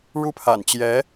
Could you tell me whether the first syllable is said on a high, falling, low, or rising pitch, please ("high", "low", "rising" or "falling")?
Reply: high